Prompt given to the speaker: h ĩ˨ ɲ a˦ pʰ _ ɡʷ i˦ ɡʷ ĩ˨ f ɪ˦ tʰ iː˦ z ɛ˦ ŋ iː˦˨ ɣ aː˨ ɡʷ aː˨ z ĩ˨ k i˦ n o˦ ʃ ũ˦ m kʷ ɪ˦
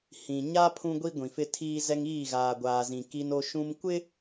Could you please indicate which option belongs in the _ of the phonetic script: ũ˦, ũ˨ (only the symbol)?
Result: ũ˦